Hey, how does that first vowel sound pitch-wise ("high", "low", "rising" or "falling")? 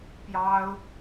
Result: high